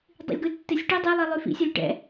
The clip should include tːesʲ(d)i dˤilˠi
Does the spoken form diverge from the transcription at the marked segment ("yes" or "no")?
yes